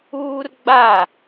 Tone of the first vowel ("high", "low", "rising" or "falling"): high